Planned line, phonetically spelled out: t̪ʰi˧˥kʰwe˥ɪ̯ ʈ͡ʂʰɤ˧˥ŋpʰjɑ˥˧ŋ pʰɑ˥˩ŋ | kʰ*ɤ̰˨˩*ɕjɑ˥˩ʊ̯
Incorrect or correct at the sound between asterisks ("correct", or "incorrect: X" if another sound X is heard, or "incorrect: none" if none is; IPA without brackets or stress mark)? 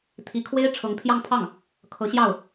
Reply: incorrect: ɤ˧˥